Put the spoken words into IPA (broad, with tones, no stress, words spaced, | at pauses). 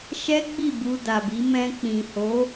ʃɛ˦ɡ͡bi˦˨ bu˧da˨bi˨˦ mɛ̃˧k͡pĩ˨ho˨˦